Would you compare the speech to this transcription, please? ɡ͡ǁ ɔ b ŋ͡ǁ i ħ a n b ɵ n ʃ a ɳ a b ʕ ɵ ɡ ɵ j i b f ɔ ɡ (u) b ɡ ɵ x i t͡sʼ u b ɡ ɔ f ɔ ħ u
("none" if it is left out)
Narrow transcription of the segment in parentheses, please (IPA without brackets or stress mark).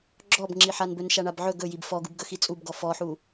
u